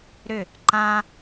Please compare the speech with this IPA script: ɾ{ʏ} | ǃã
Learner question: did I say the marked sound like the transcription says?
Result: yes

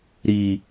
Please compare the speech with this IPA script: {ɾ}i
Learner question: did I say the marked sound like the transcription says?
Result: yes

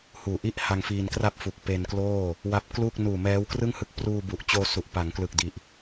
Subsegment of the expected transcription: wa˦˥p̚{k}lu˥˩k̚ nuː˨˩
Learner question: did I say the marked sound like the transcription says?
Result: yes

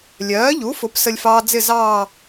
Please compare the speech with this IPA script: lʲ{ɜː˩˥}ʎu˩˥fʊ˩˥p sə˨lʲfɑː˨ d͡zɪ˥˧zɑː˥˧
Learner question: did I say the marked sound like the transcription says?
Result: yes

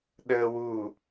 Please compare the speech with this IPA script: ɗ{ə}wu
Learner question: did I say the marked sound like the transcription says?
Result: no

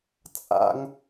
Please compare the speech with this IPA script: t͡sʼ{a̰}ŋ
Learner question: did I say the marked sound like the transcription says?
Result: yes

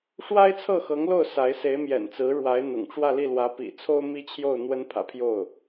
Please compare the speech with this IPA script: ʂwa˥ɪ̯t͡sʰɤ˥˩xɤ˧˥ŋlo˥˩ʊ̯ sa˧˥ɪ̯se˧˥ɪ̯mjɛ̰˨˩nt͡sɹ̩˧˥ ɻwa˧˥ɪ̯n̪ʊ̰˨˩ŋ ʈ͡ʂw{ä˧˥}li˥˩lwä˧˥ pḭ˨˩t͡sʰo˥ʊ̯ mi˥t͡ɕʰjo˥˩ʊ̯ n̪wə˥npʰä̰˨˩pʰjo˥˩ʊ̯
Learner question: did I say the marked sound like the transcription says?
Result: no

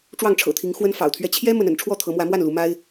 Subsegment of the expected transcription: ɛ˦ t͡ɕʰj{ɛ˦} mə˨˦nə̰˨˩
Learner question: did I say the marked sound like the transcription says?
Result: yes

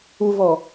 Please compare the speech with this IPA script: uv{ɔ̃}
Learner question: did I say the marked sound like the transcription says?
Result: no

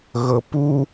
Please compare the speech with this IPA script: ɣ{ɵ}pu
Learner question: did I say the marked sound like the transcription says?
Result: no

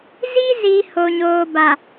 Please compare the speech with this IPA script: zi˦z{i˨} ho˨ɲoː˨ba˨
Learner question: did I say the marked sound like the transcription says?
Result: yes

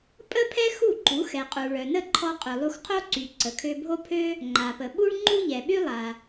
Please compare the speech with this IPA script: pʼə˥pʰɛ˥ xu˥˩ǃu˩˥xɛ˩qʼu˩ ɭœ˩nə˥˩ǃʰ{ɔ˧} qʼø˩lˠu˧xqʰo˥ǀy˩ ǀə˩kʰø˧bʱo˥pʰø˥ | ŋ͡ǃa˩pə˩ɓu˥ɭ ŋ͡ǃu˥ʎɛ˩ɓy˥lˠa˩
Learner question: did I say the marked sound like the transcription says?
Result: yes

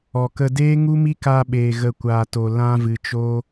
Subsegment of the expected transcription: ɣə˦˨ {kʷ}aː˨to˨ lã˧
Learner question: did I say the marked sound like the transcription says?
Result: yes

